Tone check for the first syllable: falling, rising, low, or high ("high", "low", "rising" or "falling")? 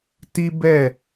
high